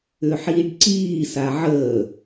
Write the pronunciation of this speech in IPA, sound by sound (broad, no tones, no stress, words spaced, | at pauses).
ʏħiːɖǀiːsa ʕəː